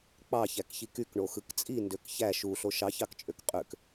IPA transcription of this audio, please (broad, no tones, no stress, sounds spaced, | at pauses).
k͡p ɑ ç æ k ç i k y k ɳ o x ɯ k t͡sʼ i n d ø k ç æ ʃ u ɬ o ʃ ɑ ç ɑ k t͡ʃʼ ø k qʼ ø k